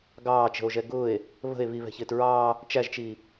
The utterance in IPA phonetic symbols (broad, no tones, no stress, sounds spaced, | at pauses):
ɡ ɑː t͡ʃ ə̤ o̯ ʒ ɛ ɡ ʊː e̯ | β ə̤ e̯ β i β ɛ̤ ç ɪː t ɹ ɑː | t͡ʃ æ ʒ t͡ʃ iː